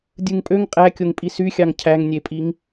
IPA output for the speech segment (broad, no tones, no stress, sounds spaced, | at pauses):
dʲ ɯ ŋ pʼ ø ŋ qʼ æ kʲ o ŋ pʼ i s y xʲ ɑ ŋ cʰ æ ŋ nʲ e pʼ i ŋ